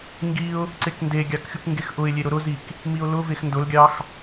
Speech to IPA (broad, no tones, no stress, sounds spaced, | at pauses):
ŋ ɡ i ʊ̯ | ǀ e k n d e ɡʲ ɑ k xʲ u k ŋ ɡ e x ʔ ʊ ɪ̯ lʲ e ɾ ʊ ɾ ʊ z i k | m i ʊ̯ l ʊ v e x n d ʊ l ɡʲ ɑ x